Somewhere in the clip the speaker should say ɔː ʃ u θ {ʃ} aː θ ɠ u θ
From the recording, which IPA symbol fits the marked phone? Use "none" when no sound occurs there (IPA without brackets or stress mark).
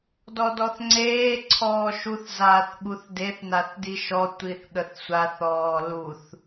z